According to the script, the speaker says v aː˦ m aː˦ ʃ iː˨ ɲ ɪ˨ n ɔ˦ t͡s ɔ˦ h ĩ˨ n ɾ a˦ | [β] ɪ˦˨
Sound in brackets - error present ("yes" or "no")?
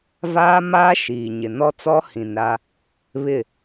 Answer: no